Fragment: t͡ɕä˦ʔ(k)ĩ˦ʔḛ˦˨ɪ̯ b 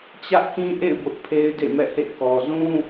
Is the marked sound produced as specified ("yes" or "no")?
yes